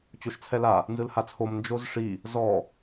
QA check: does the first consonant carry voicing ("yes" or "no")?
no